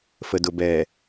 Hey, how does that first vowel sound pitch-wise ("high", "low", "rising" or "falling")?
low